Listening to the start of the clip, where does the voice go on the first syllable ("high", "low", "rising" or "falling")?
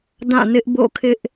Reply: falling